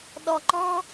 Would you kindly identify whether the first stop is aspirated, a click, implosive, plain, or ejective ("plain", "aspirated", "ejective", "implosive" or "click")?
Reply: implosive